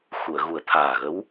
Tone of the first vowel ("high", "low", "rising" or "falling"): low